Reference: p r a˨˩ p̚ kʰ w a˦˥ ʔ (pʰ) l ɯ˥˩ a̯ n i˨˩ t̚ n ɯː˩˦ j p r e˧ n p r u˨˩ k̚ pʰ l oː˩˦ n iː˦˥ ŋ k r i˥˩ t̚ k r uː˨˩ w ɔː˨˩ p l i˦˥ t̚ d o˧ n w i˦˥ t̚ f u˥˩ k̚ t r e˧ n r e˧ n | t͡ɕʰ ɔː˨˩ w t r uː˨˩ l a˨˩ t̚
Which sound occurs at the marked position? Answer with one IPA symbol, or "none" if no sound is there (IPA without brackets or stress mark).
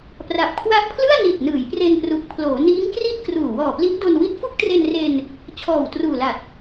pʰ